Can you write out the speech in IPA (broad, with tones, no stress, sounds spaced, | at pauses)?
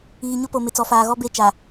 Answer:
iː˨ ɲ ʊ˦ p o˨ m ɪ˨ t͡s ɔ˨ f aː˨ ɣ ɔ˦ b e˦˨ t͡ʃ a˨